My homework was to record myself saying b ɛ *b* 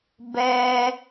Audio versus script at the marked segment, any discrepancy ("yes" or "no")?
yes